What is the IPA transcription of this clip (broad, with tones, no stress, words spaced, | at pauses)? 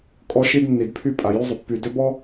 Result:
kʼɔ˦ʃi˦d nːi˨dpʰy˦pʼa˨ jy˦zˤʏ˨ pːy˨ dʏ˦bɔ˦